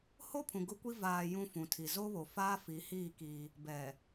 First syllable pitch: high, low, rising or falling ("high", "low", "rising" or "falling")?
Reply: high